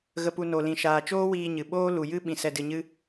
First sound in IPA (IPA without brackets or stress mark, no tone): ɣ